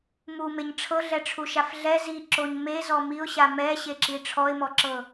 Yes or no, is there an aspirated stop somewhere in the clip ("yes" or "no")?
yes